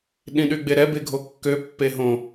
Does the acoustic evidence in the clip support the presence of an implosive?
yes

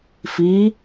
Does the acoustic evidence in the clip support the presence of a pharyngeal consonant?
no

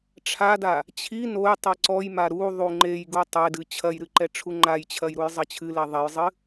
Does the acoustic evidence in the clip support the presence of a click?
yes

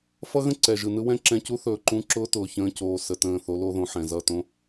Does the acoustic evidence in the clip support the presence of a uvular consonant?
no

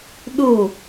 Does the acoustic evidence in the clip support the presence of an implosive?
yes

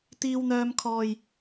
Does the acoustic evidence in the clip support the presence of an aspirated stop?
yes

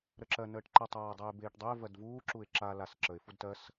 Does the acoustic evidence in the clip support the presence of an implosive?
no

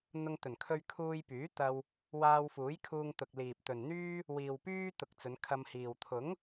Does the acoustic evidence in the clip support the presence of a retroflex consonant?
no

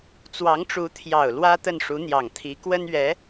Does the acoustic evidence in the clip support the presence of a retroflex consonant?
yes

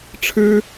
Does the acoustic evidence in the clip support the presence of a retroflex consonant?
yes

